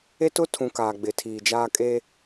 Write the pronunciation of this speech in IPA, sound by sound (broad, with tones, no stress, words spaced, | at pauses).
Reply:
e˦tʊ˦tʰũ˨ kaː˨ɡ͡bɪ˨tʰiː˨d͡ʒaː˦ kʼe˦